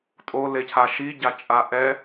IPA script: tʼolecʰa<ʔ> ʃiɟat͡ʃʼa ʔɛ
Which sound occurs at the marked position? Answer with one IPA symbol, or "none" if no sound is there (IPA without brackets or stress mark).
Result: none